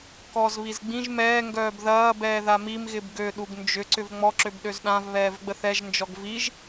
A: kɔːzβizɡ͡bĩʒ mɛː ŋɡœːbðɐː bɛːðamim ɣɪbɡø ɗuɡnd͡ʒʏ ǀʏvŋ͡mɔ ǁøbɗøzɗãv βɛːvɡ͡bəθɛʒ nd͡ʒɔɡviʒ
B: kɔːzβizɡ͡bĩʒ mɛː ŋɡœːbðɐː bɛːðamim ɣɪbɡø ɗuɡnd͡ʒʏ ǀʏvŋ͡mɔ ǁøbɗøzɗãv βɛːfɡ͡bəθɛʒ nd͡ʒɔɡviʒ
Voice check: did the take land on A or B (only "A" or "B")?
A